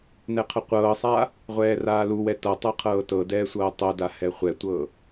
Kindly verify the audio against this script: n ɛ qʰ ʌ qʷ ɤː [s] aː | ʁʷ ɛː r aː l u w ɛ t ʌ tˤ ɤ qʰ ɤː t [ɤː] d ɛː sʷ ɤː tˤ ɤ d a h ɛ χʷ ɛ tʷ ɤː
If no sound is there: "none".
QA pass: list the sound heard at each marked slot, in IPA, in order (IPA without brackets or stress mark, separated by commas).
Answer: sˤ, ɤ